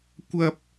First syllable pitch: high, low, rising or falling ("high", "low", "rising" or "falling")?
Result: high